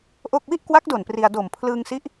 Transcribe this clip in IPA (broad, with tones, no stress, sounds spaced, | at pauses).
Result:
ʔ o˥˩ k̚ w i˥˩ ʔ k w a˦˥ k̚ d o˨˩ n p r i˧ a̯ d o˨˩ m pʰ l ɯː˧ ŋ s i˦˥ ʔ